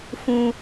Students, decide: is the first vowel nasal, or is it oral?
nasal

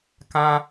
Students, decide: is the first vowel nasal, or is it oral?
nasal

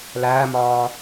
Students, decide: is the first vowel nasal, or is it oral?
oral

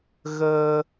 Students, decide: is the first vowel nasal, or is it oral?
oral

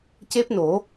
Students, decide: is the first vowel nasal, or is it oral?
oral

